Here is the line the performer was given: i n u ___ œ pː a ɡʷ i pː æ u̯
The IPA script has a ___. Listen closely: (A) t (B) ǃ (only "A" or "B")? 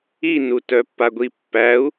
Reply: A